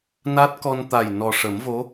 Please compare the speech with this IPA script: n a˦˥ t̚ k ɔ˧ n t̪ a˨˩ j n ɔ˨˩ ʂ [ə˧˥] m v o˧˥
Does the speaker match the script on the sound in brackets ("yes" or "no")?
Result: no